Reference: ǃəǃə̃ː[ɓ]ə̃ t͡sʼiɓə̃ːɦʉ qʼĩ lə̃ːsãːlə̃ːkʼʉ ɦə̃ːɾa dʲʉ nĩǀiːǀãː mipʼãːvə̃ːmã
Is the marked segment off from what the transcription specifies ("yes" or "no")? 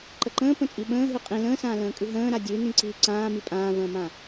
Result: yes